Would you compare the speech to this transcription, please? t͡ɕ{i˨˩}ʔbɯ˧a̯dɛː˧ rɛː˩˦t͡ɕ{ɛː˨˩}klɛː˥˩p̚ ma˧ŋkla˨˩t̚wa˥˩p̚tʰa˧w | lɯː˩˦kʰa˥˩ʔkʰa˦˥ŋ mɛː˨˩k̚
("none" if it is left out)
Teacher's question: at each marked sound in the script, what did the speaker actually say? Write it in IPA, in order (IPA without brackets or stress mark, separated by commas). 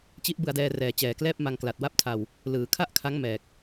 i˦˥, ɛː˨˩